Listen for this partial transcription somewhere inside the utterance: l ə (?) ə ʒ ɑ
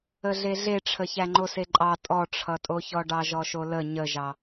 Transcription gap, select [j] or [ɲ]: ɲ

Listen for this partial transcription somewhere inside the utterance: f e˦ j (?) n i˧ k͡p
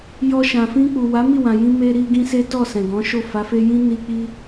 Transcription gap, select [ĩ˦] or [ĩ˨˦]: ĩ˦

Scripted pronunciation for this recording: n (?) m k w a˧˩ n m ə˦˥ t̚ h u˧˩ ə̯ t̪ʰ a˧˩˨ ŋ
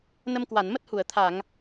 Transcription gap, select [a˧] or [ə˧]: ə˧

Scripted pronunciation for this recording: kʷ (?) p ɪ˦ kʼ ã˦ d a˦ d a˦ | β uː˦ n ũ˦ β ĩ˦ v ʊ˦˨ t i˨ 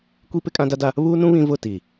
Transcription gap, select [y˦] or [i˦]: i˦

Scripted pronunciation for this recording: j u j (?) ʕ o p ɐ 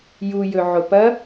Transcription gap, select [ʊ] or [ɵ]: ɵ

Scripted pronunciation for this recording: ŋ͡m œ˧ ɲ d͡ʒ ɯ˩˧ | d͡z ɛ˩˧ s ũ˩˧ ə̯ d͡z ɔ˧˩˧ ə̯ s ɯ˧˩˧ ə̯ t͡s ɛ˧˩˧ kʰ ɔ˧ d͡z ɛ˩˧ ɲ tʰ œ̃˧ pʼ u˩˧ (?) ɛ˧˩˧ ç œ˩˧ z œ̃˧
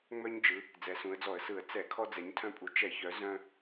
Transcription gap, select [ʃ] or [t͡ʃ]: t͡ʃ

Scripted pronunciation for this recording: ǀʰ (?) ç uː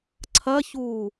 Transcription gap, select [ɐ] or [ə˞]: ɐ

